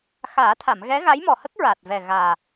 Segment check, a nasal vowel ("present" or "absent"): absent